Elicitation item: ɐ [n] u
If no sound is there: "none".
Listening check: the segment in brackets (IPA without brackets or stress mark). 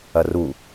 r